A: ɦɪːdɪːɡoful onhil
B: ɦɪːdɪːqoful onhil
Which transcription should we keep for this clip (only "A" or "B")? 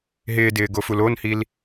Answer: A